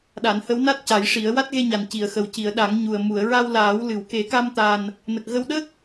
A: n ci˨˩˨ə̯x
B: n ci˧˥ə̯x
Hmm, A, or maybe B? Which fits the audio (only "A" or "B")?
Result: A